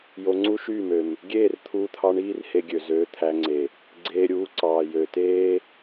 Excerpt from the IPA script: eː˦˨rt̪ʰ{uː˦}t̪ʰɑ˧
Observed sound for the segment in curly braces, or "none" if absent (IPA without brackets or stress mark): uː˧